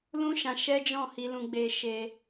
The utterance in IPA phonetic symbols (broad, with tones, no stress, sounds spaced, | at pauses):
l ũ˦ ʃ ã˧ ʃ ɛ˦ d͡ʒ ɔ̃˦˨ h i˧ l ũ˧ ɡ͡b e˧ ʃ e˧